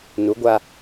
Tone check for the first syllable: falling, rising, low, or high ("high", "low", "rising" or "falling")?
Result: rising